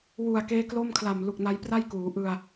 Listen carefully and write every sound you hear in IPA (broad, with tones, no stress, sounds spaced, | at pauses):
w u˨˩ a̯ k eː˦˥ k l o˥˩ m kʰ l a˨˩ m l u˨˩ k̚ n a˦˥ j p r a˥˩ j k uː˩˦ ʔ ɯ˧ a̯